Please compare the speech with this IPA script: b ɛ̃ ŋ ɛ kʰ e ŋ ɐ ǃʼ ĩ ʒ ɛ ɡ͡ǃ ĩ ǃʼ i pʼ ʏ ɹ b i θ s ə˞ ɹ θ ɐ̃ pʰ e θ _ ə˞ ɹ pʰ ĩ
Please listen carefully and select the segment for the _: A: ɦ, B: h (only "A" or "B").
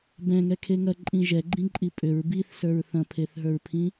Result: A